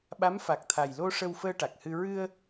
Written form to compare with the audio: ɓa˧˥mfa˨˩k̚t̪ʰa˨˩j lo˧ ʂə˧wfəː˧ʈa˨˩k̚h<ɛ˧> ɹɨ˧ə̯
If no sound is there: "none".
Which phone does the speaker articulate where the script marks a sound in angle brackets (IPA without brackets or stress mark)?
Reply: ɨ˧